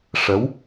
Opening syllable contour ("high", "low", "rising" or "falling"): rising